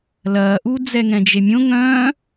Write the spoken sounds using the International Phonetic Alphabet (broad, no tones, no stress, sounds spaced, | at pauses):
l ɐː ʔ u d͡z ɛ ŋ ɛ̃ d͡ʒ e mʲ õ ŋ œ̃